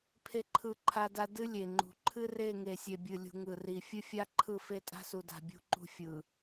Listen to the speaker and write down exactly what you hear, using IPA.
pʰ e˦ ǃʰ ɯ˦˨ ǃʰ a˦ d a˦ d ɨ˦ lʲ e˨ ŋ͡ǃ ṳ˨ ǃʰ ɨ˦ r e˦˨ ŋ e˨ sʲ e˨ bʲ ɨ˨ lʲ ṳ˨ ŋ ɯ˨ r i˨ fʲ ɨ˦ fʲ a˦ ǃʰ ɯ˦˨ f e˦ tʼ a̤˦ s u˨ d a̤˨ bʲ ṳ˦ ǃ ṳ˦ fʲ ɯ˨

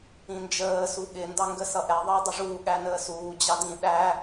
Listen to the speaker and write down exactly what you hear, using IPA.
ĩ n d͡ʒ əː s u ɠ ɪ n d ɑ ŋ ɡ ə s ʌ ʔ ɛ ðˤ əː dˤ ʊ ʐ uː ɠ æ n əː s uː d͡ʑ ɑ d ĩ ɗ æ

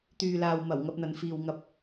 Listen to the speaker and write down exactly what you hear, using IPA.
t̪ yː˨ l aː˨ w m ɐ˨˩ w ŋ ɐ˧ p̚ n̪ ɐ˨ n f iː˨ w ŋ ɐ˧ p̚

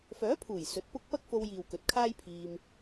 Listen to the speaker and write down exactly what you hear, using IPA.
f œː˨˥ pʰ uː˨˩ j s ɵ˨˥ t̚ p ʊ˥ k̚ p ɐ˥ k̚ f o˧ w j iː˨ w k ɵ˨ t̚ kʰ aː˥ j pʰ iː˧ m

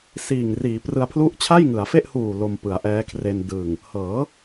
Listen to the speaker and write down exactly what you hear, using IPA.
s iː˨˩ ŋ r iː˩˦ p r ɯ˧ a̯ pʰ l u˥˩ ʔ t͡ɕʰ a˥˩ j ŋ ɯ˩˦ a̯ f e˥˩ ʔ h uː˨˩ l o˧ m p ɯ˩˦ a̯ ʔ ɛː˦˥ kʰ r e˧ n d ɯː˨˩ ŋ | h ɤː˩˦

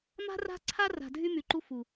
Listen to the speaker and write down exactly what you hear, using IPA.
m a̤˦ r a̤˦ ǀʰ a˦ r a̤˨ dʱ y˦ m y˨ ǃ u˦ f u˨

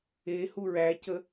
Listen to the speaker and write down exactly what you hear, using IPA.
e h u ɹ æ c ə

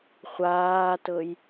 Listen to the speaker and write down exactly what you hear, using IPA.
χʷ aː t ɤ j

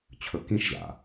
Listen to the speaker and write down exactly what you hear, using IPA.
t͡ɕʰ ɵ k ĩ ʃ ʑ a̰

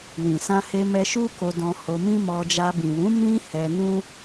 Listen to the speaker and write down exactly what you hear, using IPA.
w ĩ˨ s ã˧ h e˧ m ɛ˧ ʃ u˦ k o˧ d ɔ̃˧ h o˧ m ĩ˦ m ɔ˧ d͡ʒ a˧ b ĩ˨ w ũ˨˦ m ĩ˦ h ɛ˧ n ũ˦

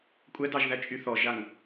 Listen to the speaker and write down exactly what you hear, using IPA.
kʷʼ ɛ d ɑ ʒ ð æ t͡ʃʼ y θ ɔ ʒ a ŋ

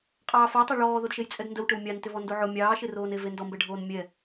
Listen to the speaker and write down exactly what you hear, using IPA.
qʼ ɑː f o tˤ ɛ ɭ ɔː ð o d ʃ e j t͡sʼ ɛ d n d ə w ʈ ʏ w mʲ ɑ n t ʏ v ɔ n d o ʕ o mʲ ɑː ʃ e r oː n e v e n d ɔ m b ɛ ɖʱ oː n mʲ ɛ

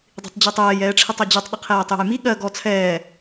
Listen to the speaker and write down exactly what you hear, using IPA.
dˤ i̤ tˤ d͡ʑ i tˤ ɛː j ɛː ʈ͡ʂʰ i tˤ ɛ d͡ʑ ɵ tˤ ɗ ə qʰ ɛː tˤ j ə̤ j m i ɠ ɜ ɡ ɔ t͡sʰ ɛː

